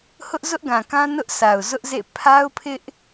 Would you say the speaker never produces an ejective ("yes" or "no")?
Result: yes